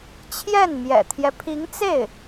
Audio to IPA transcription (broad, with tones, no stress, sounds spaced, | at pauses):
t͡ɕʰ j ɛ˥˩ n m j ɛ̰˨˩ t̪ʰ j ɛ˦ pʰ i˧˥ ŋ t͡s e˥˩ ɪ̯